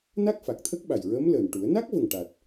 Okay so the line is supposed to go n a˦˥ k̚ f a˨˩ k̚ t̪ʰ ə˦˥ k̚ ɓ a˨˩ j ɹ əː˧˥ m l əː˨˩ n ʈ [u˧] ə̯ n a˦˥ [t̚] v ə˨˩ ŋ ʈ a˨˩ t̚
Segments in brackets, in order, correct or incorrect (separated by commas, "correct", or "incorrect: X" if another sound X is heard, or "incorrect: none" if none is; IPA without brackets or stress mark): incorrect: u˨˩˦, incorrect: k̚